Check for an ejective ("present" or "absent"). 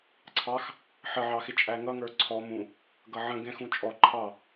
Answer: present